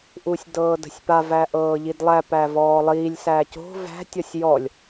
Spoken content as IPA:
ʔ uː sʲ d ɤː d ə̤ sʲ p a v æ ʔ ɤː ʎ i d lˠ æ p æ v ɔː lˠ iː lʲ s æ c o̤ v æ̤ tʲ ɔ sʲ j ɔ lʲ

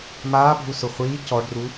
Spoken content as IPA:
m aː bʱ u s ʊ χʷ iː c ɔ ɖ r u

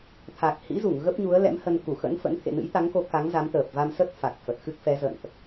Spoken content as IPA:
t̪ʰ a˨˩ k̚ h ḭ˧˥ z u˧˩ ŋ ɣ ə˦˥ p̚ ɲ u˨˦ ə̯ l ɛ̰˧˥ m h ə˧ n k u˧˩ x ə̰˧˥ n f ə̰˧˥ n t̪ʰ ḛ˧˨ n ɨ̰˧˥ j t̪ a˨˦ ŋ k o˨˦ k a˨˦ ŋ z a˨˦ m t̪ əː˨˩ p̚ v a˧ m s ə˦˥ t̚ f a˨˩ k̚ f ə˨˩ t̚ x ɨ˦˥ k̚ f ɛ˨˦ z ə̰˧˨ n ʔ

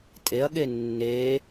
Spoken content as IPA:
tʼ e ɐ̯ ɠ e nː e

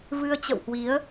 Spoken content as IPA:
v ɨ˧ ə̯ t͡ɕ ə̰˧˨ w h w i˨˦ ə̯

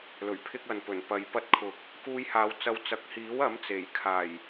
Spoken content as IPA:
l ɵ˨˩ ɥ pʰ ɪ˧ k̚ ɐ˨ n p ɵ˨˩ n p ɐ˨˧ j p ɐ˧ t̚ kʰ ʊ˨˥ k̚ | k uː˧ j h aː˨˧ w t͡s ɐ˨˧ w t͡s ɐ˨ k̚ h iː˨˥ w ɐ˨˥ m t͡s e˨˩ j kʰ aː˨˩ j

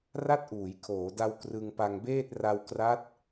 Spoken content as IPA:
r a˥˩ t̚ ʔ uː˩˦ j kʰ oː˩˦ d a˧ w k r ɯ˧ ŋ p a˧ ŋ b eː˥˩ t̚ r a˧ w k r a˦˥ t̚

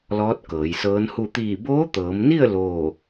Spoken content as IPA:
l ɔː˧˥ t̚ k ɤː˩˧ j s ɤː˧˥ n h u˥˨ t̪ iː˧˩ b oː˧˥ t̪ ɤː˩˧ m n i˥˨ ə̯ l oː˥˨

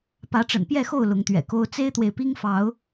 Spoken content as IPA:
p ä˨˦ ʈ͡ʂ ə̰˨˩ n p j ɛ˥˨ x o˥˨ ʊ̯ l ʊ˨˦ ŋ t̪ ɥ ɛ̰˨˩ k o˦ ʊ̯ t͡s e˦ ɪ̯ t̪ w e˨ ɪ̯ p i˦ ŋ f ɑ˨˦ ʊ̯

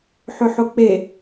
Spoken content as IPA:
ħ ʏ ħ ʊ k͡p e

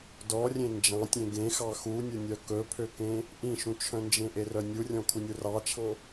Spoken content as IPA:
d ɔ rʲ ẽ n d͡ʒ ɑ̃ tʲ ẽ ɡ ẽ x ɑ x u nʲ ɵ nʲ œ k ɵ pʰ ø k ẽ | ʔ ĩ ʃ ũ t͡ʃʰ œ̃ n d͡ʒ ẽ ʔ e r œ nʲ u rʲ ɔ̃ kʰ u nʲ u r ɑ t͡ʃʰ ɑ̃

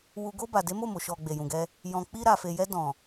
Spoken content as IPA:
w u˧ ɡ o˧ b a˨ d e˨˦ m o˦˨ m o˨ ʃ ɔ˨ ɡ͡b e˨ j ũ˨ ɡ ɛ˧ | j ɔ̃˨ k͡p i˧ ɾ a˨ f e˨ j ɛ˧ d ɔ̃˨

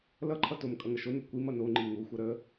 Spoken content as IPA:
l ʌ ǃʰ ʌ t o m kʼ ʌ ŋ ə ʃ o n u kʷ i m ʌ n o ŋ͡ǃ i ŋ u xʷ ʌ ɾ ə

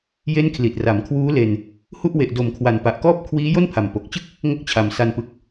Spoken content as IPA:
j e˦˥ n kʰ l i˨˩ t̚ r a˩˦ m kʰ w uː˦˥ l e˧ n | h u˥˩ ʔ w e˨˩ ʔ d o˩˦ m kʰ w a˩˦ n p a˨˩ ʔ k ɔː˥˩ p̚ kʰ w iː˦˥ j o˥˩ n pʰ a˨˩ m p o˨˩ k̚ t͡ɕ ɯ˥˩ k̚ | ŋ o˦˥ k̚ t͡ɕʰ a˨˩ m s a˧ n p ɯ˨˩ k̚

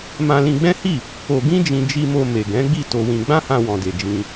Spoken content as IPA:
m ã˧ l ĩ˧ ɡ͡b ɛ̃˦ h i˦˨ | o˧ ɡ ĩ˦ d͡ʒ ĩ˧ d͡ʒ i˧ m o˧ m e˨ ɡ ɛ̃˨˦ ɡ͡b i˦˨ t o˧ w ĩ˧ ɡ͡b ã˦ h ã˧ w ɔ̃˨ d e˨ d͡ʒ ĩ˧

